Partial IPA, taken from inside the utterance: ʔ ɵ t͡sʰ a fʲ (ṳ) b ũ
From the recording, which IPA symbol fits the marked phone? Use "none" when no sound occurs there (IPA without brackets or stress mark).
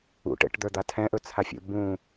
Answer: ṵ